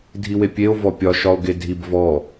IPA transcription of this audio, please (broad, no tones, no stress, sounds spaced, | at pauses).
dʱ i w e pʲ e o̯ v ɔ pʲ ɒ ʃ ɒ o̯ ɡ e dʱ i b v ɔ